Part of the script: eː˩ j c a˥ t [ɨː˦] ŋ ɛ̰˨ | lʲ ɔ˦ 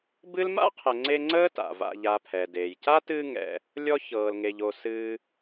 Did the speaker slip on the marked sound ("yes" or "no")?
no